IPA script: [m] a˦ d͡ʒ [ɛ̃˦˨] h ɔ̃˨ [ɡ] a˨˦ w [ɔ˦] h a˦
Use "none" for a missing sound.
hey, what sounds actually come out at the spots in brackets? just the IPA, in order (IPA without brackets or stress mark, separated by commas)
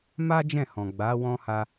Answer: m, ɛ̃˦˨, ɡ͡b, ɔ̃˦